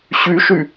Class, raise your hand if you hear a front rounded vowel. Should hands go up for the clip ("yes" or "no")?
yes